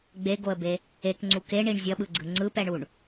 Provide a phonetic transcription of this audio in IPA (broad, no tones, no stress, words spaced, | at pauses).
ɡ͡beɡoə̯be | ekŋ͡ǀu keɳiɳ zʲʌɓɯɡ͡ǀɯ ŋ͡ǀɯpɛɳuɳ